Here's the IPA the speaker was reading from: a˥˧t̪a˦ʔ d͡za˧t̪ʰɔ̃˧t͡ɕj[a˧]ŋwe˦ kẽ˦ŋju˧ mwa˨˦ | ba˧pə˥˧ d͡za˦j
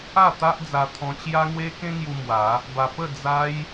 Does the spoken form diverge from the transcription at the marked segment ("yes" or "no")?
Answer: yes